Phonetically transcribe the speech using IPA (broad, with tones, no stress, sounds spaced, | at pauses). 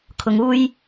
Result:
kʰ ʊ˨ ŋ uː˧ j